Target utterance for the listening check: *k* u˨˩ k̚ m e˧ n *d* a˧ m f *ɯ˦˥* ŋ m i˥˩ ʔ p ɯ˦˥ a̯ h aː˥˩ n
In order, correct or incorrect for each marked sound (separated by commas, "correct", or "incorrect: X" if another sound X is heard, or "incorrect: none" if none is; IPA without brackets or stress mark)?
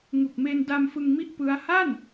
incorrect: ŋ, correct, incorrect: ɯ˧